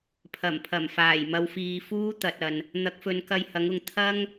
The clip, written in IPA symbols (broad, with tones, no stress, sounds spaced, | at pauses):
pʰ ɐ˨˩ m pʰ ɐ˨˩ m f aː˨˩ j m ɐ˧ w f iː˧ f uː˥ t̪ ɐ˨ t̚ ɐ˨ n | n̪ ɐ˨˥ k̚ f ɵ˨˧ n k ɐ˧ j h ɐ˨˥ ŋ ʊ˨ ŋ t̪ʰ ɐ˥ ŋ